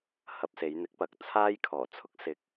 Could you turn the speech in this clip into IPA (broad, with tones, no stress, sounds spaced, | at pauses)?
h ɐ˧ p̚ s e˨˧ j n̪ ɪ˨˥ k̚ p ɐ˨ k̚ t͡sʰ aː˥ j kʰ ɔː˨˩ t͡sʰ ʊ˥ k̚ s ɪ˧ k̚